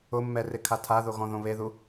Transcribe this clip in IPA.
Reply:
ʊ mː ɛ r ɪ kʰ a tʰ a ð o ɣ ɔ̃ ð õ β e ð u

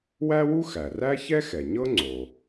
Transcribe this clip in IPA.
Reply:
w æ˥ w u˥ x æ˩ r æ˥ ç ɛ˥ x ɛ˩ ɲ ɤ˥ ŋ͡ǀ o˩

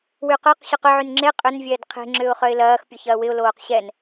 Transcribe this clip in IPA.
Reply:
w y q œ q ɕ ʏ q ʏ ʕ y n ŋ͡ǁ e qʼ ʏ n vʲ ɛː d qʰ e̤ ŋ͡ǁ ʏː ʊ̯ χ œ ɪ̯ l ɐː x pʲ o ç ɐː w ɪ ʊ̯ l oː q ɕ ɛ n

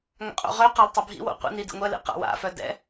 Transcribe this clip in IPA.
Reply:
ŋ a̰ qʼ o̰ ʁ œ q a l tˤ œ bʱ ḭ w o̰ qʷ ḭ n i d ḭ ŋʷ ɛ l ḭ q a̰ w a̰ f œ d ɛ̰

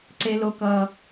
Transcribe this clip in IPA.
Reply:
ǀ e˦ l o˦ k ʌː˦

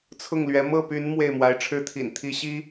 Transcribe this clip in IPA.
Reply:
t͡sʰ ʊ˥˩ ŋ l ɥ ɛ˧˥ m ɤ˥˩ p y˧˥ n m w e˥˩ ɪ̯ m w a˧˥ ɪ̯ ʈ͡ʂʰ ɻ̩˥˩ t̪ʰ ḭ˨˩ n t̪ʰ i˧˥ ɕ i˥

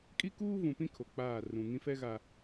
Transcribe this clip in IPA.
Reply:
kʼ i˦ k uː˦ v ũ˨ p ĩ˦ kʰ o˨ k͡p aː˦˨ r ũ˨ ŋ ĩ˦ f ɛ˦ ɣ a˨

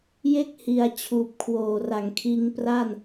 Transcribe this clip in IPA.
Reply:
j e˥˩ k̚ h i˧ a̯ t͡ɕʰ uː˨˩ p̚ kʰ w oː˨˩ r a˩˦ ŋ kʰ iː˧ ŋ p r a˥˩ n

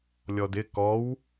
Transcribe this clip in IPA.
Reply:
lʲ ɔ d ɪ k ɔ w

